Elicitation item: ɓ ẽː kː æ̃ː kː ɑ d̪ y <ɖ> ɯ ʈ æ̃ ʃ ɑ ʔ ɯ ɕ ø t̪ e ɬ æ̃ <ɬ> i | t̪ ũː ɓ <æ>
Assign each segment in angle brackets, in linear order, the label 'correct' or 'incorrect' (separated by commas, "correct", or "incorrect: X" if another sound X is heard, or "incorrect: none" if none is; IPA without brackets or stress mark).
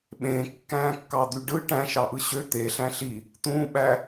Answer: correct, correct, correct